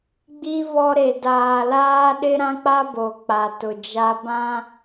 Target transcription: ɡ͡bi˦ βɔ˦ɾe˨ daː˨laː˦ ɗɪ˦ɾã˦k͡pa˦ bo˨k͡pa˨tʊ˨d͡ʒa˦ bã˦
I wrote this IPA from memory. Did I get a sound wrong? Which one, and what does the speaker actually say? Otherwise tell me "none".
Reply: none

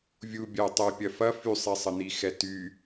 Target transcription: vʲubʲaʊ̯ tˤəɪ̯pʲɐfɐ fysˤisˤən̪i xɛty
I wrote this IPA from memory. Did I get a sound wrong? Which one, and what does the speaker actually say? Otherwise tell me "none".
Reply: a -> ɐ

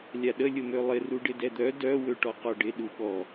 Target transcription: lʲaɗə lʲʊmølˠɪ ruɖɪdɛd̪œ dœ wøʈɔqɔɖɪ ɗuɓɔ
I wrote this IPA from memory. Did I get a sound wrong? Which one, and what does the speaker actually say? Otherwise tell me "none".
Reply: none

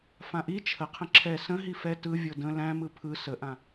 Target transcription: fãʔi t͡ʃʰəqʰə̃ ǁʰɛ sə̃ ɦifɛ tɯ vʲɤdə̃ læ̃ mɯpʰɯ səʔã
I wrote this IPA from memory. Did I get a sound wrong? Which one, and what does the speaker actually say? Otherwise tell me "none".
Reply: none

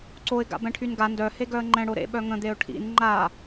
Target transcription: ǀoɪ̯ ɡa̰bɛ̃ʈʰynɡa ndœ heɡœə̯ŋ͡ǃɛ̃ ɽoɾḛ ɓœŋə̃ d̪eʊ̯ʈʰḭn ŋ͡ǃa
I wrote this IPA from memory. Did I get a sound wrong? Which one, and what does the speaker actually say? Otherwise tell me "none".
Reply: none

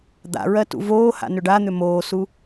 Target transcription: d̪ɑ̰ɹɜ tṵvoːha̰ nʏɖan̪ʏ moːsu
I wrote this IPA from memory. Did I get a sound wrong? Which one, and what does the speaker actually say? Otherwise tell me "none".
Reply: ɑ̰ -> a̰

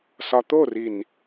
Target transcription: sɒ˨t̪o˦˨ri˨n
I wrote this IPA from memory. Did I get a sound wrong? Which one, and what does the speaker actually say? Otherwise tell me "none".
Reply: none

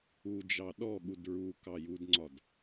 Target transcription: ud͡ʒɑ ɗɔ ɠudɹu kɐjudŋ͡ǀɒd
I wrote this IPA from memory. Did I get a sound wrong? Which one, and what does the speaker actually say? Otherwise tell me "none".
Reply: ɐ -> ɑ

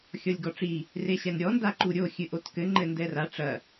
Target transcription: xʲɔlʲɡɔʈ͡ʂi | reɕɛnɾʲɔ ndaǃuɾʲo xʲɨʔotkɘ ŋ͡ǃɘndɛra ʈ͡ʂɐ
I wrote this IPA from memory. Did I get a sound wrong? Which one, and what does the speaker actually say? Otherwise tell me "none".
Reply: none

